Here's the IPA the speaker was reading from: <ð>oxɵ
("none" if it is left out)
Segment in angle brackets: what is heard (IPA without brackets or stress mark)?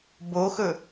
b